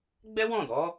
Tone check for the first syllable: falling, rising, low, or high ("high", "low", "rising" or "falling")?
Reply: high